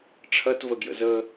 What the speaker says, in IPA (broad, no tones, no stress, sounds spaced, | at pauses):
ʈ͡ʂʰ ɐ t v ə ɡ j ə̰ z ə